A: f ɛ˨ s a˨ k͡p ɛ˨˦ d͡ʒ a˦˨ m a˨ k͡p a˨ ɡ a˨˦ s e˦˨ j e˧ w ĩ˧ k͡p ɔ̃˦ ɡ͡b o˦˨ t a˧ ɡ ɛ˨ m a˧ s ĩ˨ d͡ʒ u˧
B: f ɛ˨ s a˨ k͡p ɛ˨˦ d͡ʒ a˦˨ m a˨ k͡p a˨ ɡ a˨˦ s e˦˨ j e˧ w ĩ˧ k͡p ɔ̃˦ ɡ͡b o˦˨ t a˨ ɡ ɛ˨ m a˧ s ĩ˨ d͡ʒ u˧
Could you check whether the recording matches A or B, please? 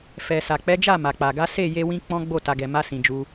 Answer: B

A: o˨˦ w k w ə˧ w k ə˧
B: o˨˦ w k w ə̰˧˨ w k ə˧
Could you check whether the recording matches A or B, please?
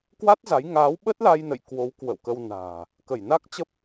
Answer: B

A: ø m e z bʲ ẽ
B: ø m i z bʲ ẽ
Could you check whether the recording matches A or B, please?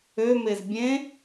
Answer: A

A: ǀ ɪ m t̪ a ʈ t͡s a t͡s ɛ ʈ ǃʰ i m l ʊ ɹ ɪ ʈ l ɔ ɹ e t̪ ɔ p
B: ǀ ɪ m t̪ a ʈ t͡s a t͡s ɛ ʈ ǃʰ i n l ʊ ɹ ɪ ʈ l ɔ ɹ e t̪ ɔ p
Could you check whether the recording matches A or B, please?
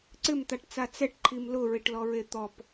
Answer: A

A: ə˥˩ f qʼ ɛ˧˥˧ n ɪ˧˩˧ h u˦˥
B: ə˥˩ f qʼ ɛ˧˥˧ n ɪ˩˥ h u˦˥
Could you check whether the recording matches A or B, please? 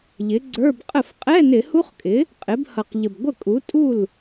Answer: A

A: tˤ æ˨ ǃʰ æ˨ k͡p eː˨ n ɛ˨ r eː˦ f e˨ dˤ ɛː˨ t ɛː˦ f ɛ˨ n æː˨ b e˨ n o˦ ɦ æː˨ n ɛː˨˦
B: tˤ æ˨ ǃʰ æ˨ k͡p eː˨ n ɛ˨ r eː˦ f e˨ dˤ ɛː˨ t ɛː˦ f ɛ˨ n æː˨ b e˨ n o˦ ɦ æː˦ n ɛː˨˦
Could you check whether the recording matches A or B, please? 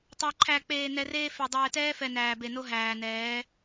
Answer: A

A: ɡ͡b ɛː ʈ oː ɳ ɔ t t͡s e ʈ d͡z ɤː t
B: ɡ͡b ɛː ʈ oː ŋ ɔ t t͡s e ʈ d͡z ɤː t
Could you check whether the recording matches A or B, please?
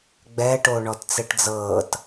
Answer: A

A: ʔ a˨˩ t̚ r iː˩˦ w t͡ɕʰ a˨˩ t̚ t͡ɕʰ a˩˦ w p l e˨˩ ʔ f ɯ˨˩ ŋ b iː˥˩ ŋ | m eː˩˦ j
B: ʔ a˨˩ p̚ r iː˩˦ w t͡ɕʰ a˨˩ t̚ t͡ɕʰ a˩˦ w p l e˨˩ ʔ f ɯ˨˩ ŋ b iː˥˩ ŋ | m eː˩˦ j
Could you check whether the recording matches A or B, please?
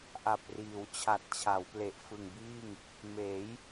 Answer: B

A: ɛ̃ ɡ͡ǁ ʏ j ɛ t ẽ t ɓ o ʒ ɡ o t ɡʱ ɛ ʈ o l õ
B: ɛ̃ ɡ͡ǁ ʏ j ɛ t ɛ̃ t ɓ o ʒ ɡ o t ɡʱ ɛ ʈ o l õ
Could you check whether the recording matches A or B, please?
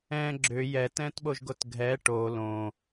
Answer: B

